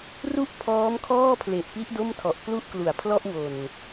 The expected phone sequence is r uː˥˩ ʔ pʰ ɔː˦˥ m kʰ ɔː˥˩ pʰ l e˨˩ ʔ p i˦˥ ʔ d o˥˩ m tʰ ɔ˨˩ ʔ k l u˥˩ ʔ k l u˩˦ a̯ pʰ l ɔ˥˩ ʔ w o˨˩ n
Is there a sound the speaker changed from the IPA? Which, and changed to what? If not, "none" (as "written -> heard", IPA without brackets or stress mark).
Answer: uː˥˩ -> u˥˩